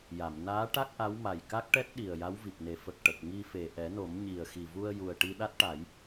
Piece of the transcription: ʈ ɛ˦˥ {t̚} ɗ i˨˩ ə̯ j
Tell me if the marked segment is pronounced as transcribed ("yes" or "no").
yes